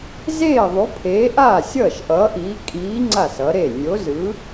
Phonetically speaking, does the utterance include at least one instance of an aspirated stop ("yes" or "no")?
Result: yes